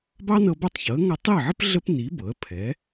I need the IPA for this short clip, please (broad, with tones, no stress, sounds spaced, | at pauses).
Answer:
b ɑ˥ n ɤ˧ b ɐ˥˩ tˤ ç ɤ˩˥ ə̯ ŋ ʌ˧ tˤ i˥˩ ə̯ ʕ ə˥ p ɮ ə˥ p n i˩˥ b ɤ˩˥ ə̯ pʰ ɛ˩˥